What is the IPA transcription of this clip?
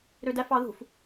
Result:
ɾ ø d æ f ɑ ð ṳ f

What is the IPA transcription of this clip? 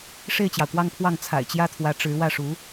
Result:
ʂ e˥˩ ɪ̯ t͡ɕ j ɑ˩ ʊ̯ k w ɑ˥˧ ŋ pʰ w ɑ˥˩ ŋ t͡sʰ a̰˨˩ ɪ̯ t͡ɕ j ä˥ t̪ʰ w ä˧˥ ʈ͡ʂ ɻ̩˧˥ w ä˥˩ ʂ u˧˥

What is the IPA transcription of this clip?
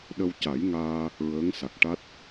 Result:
ɗ ə˧ w c a˨˩˦ j ŋ aː˧ | ɹ əː˧˥ ŋ s a˨˩ k̚ ʈ a˦˥ t̚

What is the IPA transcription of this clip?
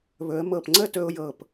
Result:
β ɵ˩˧ ə̯ m ɤ˧˩ p ŋ͡ǀ ə˥˧ t ɵ˧ ʊ̯ j ɤ˧˩ p

